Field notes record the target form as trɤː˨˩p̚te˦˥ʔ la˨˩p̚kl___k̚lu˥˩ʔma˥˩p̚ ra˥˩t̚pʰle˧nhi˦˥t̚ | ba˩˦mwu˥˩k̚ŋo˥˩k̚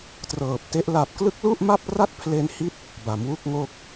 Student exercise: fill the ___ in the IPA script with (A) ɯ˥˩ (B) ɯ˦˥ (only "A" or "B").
B